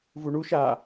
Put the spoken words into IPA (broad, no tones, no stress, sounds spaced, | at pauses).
v u ɳ u ʃ aː